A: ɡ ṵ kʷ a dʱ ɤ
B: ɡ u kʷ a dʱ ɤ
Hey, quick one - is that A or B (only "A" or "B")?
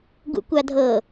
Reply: A